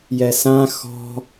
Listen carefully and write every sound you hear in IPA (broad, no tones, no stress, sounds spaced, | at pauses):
j ɛ s ã x ɔ̤